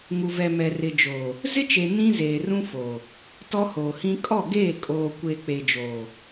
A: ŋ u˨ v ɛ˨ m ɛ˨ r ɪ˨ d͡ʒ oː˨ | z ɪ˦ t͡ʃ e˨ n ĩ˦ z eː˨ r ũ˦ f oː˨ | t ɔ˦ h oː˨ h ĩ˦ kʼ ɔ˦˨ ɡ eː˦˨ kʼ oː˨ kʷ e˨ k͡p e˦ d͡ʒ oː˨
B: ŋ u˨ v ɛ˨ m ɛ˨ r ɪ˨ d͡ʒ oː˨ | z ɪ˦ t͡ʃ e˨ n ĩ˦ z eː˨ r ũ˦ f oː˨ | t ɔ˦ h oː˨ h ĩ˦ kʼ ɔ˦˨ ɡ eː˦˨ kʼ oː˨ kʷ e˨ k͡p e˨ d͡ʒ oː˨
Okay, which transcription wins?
B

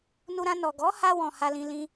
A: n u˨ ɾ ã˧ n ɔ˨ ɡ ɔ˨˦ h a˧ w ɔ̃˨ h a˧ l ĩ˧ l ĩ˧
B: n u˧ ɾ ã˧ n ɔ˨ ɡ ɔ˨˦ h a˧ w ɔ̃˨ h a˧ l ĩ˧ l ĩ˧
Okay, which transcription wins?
B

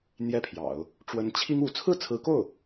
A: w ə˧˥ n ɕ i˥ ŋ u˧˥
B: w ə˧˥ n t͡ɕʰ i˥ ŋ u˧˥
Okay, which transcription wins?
B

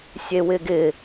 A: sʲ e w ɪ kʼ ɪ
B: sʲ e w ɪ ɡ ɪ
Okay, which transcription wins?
B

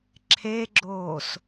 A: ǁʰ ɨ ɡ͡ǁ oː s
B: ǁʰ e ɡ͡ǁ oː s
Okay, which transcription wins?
B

